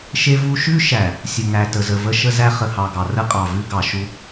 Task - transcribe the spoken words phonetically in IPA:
ʃ e˦ v u˦ ʃ ʉ˦ ʃ æ˨ | sʲ ə˨ ŋ æ˨ t ə˨ z ə˨ v ə˦ ʃ ə˦ z æ˦ χ ə˨ h ɑ˨ ɡ ɑ˨ r ə˦ qʼ ɑ˨ v ʉ˦ ɡ ɑ˨ ʃ u˦

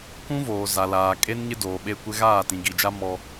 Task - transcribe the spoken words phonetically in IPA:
k ũ˦ v oː˨ z a˨ l aː˨ kʼ e˦ n ɲ ɪ˦ d oː˨ ɓ e˦ kʷ ɪ˦ ɣ aː˦˨ t ĩ˨ ɡ i˨ d͡ʒ a˦ m ɔ˦

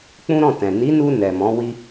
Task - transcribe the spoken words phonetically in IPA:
k͡p ũ˦ ɾ ɔ̃˦˨ t ɛ̃˨ n i˨˦ n u˧ n ɛ˨ m ɔ̃˨˦ w i˦

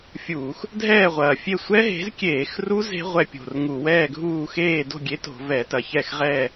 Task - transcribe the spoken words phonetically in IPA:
fʲ uː˧˩˧ x | dʱ ɛː˥˨ ʁʷ ɐː˨˩ fʲ e˥˨ sʷ ɛ˦˥ ɦ e̤˨˥ z kʲ eː˧˩˧ x r u˦˥ z e̤˦˥ ʁʷ ɛ˧ pʲ o̤˨˩ r ŋ u˧˩˧ w ɛː˥˨ ɡʱ uː˥˨ x eː˥˨ d o̤˥˨ ɡʲ e˨˥ t o̤˧˩˧ v ɛ˧˩˧ t ɐ˨˩ ç ɛ˥˨ x ʁ ɛː˥˨

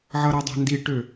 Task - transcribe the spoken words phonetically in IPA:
ʕ ʌ ɾ ɤ dˤ a̤ n d i ʈ ø

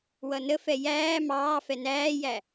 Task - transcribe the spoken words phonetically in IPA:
w ʌ n ə f ɛ j æː m ɑː f ɛ n æː j æ

